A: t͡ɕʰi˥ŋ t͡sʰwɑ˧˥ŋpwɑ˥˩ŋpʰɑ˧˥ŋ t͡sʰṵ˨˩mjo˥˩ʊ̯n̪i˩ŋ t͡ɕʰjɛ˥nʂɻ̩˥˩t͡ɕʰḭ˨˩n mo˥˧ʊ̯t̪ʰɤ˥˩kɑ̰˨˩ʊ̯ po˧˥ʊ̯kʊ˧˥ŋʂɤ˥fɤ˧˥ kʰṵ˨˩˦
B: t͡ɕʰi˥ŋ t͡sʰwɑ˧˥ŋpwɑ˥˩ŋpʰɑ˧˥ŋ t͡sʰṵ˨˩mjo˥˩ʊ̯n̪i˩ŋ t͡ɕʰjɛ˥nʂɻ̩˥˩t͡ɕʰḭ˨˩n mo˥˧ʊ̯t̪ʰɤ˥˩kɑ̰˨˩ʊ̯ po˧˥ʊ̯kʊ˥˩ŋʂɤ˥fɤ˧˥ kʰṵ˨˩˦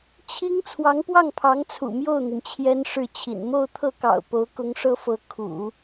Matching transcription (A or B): A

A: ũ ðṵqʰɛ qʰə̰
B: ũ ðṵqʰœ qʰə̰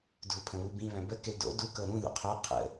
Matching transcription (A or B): B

